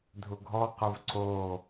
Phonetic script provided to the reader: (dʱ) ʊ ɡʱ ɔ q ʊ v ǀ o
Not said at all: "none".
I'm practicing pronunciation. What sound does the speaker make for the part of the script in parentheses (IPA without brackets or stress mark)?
dʱ